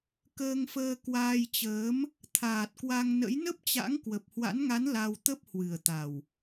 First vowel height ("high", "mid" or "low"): mid